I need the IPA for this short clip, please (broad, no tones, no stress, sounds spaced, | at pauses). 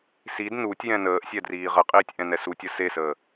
s i d n u tʲ j ɛ̃ n əː ʔ sʲ ɛ d r iː ʁ ə qʼ iː tʲ ʔ ɛ̃ n ɛ s u tʲ ə s e s əː